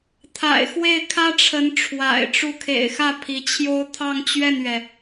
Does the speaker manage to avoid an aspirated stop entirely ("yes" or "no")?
no